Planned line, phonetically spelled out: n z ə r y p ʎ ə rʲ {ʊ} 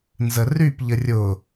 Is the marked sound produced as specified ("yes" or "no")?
yes